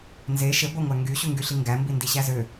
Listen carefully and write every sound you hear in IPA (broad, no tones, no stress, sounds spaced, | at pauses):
n z e ʃ e ɡʷ æ ŋʷ æ ŋ ɡ y ɕ u ŋ ɡ y ɬ i ŋ ɡ æ m b i n d i ɕ æ z ø